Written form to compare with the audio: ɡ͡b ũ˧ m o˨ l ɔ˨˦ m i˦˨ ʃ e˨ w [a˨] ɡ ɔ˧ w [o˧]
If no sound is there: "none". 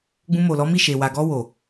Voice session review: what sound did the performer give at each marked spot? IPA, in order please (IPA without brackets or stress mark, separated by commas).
a˨, o˨